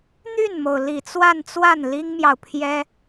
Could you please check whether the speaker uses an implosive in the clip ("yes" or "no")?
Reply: no